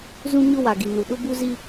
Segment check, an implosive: present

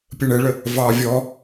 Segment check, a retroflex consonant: present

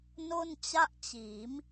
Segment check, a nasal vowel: absent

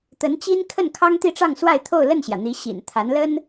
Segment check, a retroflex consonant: present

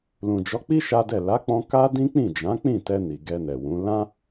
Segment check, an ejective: absent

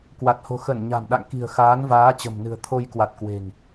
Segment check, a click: absent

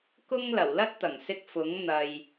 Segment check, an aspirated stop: absent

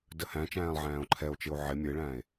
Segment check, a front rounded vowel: absent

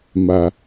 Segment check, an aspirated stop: absent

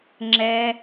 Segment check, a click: present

